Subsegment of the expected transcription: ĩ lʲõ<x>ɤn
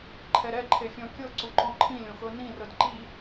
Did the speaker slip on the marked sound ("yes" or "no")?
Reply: no